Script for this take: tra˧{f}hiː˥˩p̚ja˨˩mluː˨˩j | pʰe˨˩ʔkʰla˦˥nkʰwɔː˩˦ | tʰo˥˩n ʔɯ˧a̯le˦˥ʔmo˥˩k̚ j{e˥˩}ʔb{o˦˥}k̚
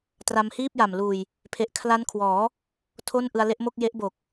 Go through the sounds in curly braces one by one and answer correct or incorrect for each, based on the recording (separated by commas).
incorrect, incorrect, incorrect